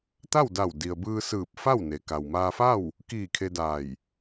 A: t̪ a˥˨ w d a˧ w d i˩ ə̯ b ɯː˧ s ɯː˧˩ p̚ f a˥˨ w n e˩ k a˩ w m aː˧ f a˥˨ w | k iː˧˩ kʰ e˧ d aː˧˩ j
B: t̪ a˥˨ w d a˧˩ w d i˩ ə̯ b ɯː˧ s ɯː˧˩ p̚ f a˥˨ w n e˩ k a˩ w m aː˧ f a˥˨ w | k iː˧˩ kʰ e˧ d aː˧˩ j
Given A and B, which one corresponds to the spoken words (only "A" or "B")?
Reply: B